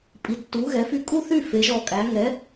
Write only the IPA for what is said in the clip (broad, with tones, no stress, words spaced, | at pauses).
pʼi˩˧˩tːu˨˥ɣɛ˨˥fy˦˨ kʼu˦˨θy˦˨ fe˨˥ʒɔ˦˨kʼæ˨˥ ŋɛ˨˥